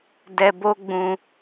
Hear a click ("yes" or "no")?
no